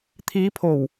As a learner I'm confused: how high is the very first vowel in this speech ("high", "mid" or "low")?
high